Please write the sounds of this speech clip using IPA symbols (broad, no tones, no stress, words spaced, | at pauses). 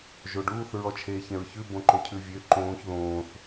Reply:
ʒoɖuːθ ɹɔt͡ʃʰeːçɛ̃ɹçʉ bõǃɵcʰʉvʲø ǃõːç ðõːθ